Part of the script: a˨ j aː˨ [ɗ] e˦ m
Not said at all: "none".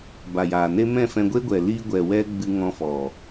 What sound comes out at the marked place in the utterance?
n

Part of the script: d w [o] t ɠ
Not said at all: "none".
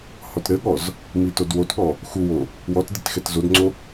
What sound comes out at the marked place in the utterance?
o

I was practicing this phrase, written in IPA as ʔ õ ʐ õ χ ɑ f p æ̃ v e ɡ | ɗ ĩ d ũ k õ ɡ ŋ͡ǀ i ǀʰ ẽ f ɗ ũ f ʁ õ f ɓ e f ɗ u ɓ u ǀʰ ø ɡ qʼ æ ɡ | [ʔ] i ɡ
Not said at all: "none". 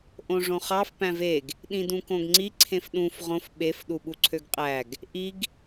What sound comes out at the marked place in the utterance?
ʔ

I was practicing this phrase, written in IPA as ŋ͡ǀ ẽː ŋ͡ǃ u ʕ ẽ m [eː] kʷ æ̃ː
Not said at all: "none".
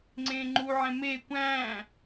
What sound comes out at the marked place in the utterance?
eː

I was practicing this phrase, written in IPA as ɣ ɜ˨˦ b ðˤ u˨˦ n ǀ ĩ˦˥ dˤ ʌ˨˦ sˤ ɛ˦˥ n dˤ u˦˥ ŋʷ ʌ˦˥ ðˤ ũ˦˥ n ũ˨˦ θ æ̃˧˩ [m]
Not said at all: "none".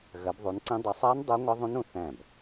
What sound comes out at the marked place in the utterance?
b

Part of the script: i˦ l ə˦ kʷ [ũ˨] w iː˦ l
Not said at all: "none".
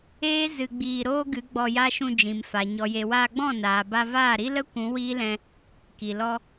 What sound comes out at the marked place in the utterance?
ũ˨˦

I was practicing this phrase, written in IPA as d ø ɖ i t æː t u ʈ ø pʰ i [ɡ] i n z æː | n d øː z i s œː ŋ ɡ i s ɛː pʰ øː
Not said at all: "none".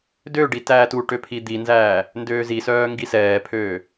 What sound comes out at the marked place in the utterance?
d̪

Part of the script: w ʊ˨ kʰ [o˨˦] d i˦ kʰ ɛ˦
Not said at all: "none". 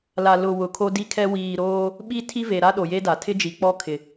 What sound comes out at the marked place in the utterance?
o˦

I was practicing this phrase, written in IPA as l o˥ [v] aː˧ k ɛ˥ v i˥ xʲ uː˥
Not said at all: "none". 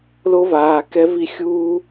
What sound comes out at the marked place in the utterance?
v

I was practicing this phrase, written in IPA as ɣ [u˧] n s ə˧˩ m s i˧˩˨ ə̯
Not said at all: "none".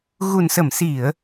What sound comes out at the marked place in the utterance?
u˨˩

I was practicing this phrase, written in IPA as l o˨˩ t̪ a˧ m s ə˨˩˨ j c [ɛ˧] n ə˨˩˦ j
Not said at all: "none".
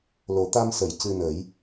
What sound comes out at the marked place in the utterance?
ɨ˧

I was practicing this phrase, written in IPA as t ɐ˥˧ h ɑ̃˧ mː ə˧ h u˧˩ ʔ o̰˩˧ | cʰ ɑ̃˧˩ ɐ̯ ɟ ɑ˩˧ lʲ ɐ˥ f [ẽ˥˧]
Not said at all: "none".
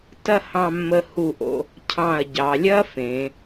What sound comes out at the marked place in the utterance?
ẽ˩˧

